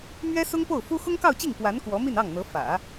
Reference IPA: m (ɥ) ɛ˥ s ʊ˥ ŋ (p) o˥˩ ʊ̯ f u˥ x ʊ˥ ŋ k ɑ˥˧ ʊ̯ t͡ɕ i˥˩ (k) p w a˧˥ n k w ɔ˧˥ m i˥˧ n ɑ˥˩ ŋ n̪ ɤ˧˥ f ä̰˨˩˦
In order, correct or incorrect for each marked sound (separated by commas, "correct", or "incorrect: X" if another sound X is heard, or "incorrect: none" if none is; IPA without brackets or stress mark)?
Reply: correct, correct, incorrect: ŋ